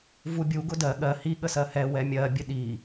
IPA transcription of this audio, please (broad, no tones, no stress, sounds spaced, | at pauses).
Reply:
v u bʲ u ɡ ʊ d ɜ ɠ ɜ h i ɠ ə s ɜ h ɛ w ɛ mʲ ɜ bʲ ɘ ɗ i